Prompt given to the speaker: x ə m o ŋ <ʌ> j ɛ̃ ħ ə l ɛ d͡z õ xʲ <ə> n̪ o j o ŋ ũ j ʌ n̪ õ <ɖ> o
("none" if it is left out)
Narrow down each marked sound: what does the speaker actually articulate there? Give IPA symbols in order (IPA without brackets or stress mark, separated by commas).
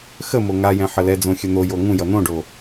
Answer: a, ə, ɖ